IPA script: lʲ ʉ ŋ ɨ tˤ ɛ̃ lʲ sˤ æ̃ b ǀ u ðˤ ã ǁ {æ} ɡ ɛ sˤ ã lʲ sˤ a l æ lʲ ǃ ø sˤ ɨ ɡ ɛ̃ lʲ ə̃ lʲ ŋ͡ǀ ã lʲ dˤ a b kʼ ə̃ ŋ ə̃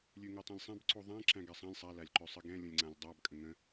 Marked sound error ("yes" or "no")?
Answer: yes